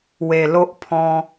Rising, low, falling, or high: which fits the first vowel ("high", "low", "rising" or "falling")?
low